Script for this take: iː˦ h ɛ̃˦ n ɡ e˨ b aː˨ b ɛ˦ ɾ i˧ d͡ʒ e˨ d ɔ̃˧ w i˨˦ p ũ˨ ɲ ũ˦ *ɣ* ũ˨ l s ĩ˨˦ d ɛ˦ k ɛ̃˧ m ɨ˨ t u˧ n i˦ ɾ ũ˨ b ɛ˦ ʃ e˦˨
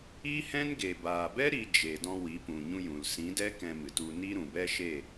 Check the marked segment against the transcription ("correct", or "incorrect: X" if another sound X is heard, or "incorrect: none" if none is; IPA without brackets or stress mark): incorrect: j